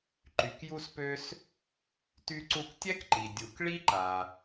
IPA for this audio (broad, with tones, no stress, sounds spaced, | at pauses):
ǃ y˩ k j u˧ s p ø˧ s | t y˧ ǀ u˧ k tʲ ɛ˥ k ǃ i˩ dʲ u˩ k ɭ i˥ ǃ a˩